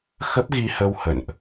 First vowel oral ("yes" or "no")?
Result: yes